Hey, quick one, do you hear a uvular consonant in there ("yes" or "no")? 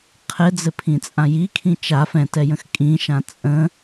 yes